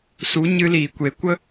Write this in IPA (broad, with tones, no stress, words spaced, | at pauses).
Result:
su˨˦ ɲɨ˧liː˨kʷe˨kʷə˦